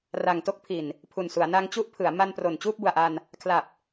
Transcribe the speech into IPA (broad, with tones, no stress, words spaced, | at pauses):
ra˨˩ŋto˦˥k̚pʰi˨˩n | pʰu˨˩nsu˩˦a̯na˧ŋ t͡ɕu˦˥ʔpʰɯ˩˦a̯ ma˧npro˨˩n t͡ɕuː˥˩p̚bu˨˩a̯ʔa˧n | kʰla˨˩p̚